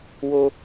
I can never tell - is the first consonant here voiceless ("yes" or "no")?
no